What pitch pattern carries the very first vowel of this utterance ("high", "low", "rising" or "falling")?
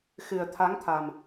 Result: low